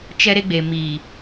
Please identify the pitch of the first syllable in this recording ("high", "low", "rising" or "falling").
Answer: high